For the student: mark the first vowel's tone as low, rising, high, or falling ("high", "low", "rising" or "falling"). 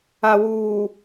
low